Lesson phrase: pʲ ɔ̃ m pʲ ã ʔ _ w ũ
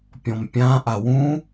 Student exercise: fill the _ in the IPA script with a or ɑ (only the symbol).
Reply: a